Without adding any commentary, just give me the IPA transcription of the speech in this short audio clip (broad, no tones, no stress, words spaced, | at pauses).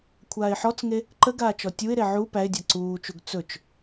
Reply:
kʷʰaːɪ̯ħɔt͡sŋe | ǃəɡaː t͡ʃɔtʲuɪ̯ɾe ʕu pæɪ̯dʲa ǀuːt͡ʃuɡ t͡sɵt͡ʃ